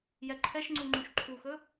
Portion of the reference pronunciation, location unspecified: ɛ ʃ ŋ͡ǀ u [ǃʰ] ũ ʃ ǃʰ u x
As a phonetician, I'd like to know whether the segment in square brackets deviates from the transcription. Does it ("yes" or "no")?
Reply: yes